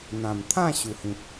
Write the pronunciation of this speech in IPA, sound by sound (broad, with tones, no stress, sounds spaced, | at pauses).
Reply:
n̪ ã˨˩ m t̪ʰ ã˥˧ ɕ u˨˩ h ĩ˨ p̚